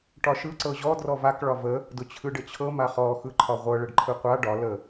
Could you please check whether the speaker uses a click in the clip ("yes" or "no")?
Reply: yes